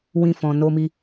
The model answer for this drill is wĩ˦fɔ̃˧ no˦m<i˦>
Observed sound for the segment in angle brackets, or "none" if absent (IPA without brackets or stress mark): i˦